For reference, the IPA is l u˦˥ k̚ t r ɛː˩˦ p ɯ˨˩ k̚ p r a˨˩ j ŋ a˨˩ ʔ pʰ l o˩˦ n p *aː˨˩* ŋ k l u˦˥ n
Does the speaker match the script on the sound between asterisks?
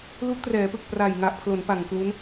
no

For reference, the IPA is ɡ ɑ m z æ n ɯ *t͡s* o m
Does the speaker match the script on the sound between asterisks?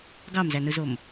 no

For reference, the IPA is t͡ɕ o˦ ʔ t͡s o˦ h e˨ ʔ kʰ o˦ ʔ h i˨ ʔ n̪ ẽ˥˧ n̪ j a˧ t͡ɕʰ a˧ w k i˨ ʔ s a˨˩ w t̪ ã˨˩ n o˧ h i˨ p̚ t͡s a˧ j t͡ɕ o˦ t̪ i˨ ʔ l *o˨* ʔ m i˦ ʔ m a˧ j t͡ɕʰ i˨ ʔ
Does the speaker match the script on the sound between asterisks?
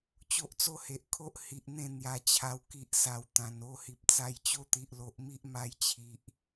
yes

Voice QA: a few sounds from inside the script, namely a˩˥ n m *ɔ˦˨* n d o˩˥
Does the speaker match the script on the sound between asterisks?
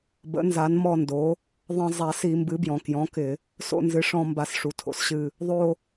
yes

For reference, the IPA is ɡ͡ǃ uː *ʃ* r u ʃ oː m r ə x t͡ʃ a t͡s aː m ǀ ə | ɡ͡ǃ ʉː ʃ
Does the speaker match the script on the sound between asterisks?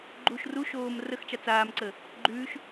yes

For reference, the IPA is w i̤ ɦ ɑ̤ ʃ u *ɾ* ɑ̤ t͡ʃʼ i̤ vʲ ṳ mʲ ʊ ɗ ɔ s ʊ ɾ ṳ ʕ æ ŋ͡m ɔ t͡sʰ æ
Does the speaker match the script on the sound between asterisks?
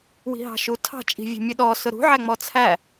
no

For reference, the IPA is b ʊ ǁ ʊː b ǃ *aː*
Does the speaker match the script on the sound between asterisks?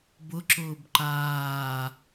yes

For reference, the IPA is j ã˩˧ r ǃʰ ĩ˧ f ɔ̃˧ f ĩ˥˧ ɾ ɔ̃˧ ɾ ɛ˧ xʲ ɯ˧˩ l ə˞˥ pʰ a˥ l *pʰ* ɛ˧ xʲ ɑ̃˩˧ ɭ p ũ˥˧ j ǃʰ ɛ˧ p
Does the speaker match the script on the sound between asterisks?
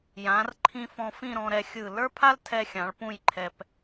no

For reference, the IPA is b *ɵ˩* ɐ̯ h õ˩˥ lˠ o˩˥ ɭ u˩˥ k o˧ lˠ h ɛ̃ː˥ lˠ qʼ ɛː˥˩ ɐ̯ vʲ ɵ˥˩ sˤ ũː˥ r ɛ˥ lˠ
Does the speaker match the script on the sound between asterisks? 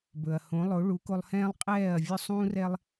yes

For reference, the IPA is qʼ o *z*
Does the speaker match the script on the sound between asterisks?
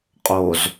yes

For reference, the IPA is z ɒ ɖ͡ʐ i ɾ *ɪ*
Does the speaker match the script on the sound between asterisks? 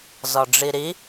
no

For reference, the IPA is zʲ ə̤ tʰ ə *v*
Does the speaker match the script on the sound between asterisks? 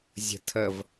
yes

